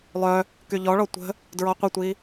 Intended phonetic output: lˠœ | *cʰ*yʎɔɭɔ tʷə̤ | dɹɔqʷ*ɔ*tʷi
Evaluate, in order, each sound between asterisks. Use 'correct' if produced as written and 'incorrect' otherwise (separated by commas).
incorrect, incorrect